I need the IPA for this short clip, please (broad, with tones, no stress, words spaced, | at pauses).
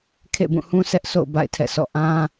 kʰḛ˦˨bũ˦˨hũ˦ sɛ˦ʔsʰo̰˦˨ʊ̯ ba̰˦˨ɪ̯tʰɛ̰˦˨sʰɔ̰˦˨ ʔã˦